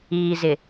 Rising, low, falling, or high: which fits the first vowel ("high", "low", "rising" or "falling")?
low